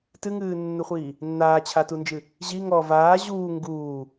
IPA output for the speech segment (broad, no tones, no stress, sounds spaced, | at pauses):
t ɨ ŋ ɨː nː u χʷ iː | nː aː t͡ɕʰ a t u n d͡ʒ ɨ | ʑ i ŋ ɔ v aː ʑ uː ŋ ɡ uː